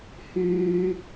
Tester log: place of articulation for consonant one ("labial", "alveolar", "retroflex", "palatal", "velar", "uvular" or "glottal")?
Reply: glottal